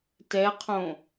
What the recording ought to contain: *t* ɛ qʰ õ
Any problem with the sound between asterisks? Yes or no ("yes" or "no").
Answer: no